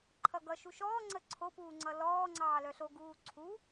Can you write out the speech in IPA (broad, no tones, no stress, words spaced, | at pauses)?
ǃʰʌɡʌ ʃuʃɔːŋ͡ǀə ǀʰopuːŋ͡ǀʌ lɔːŋ͡ǀɑː lœɬo ɡuːǀʰu